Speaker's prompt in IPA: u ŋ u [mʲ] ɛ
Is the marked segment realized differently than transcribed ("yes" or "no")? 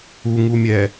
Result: no